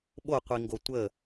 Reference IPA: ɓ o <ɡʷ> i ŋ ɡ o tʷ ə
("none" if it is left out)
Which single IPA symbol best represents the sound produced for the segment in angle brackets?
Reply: qʷ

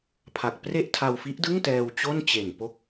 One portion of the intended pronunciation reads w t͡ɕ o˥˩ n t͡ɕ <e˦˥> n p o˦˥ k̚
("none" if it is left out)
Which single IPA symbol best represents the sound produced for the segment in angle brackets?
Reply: e˨˩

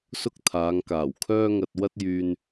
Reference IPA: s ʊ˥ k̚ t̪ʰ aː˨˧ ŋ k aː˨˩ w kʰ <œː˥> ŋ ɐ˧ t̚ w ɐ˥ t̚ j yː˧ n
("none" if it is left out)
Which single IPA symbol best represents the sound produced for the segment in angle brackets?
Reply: œː˥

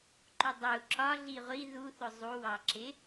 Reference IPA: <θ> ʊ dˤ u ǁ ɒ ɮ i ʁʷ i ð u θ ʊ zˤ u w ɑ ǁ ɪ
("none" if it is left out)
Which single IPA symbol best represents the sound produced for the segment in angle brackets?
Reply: ǃ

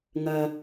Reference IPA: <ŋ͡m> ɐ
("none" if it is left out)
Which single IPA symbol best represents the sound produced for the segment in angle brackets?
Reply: ŋ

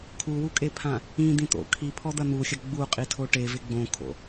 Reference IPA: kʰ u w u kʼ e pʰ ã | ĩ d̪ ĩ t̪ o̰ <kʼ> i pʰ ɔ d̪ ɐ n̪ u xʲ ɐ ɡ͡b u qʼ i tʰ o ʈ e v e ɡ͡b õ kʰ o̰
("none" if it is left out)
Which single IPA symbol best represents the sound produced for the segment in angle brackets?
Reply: kʰ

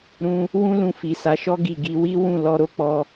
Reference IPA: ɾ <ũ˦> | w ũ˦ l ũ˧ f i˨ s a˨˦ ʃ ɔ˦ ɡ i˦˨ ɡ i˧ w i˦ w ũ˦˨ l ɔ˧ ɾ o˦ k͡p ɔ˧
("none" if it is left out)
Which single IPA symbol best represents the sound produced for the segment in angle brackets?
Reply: ũ˦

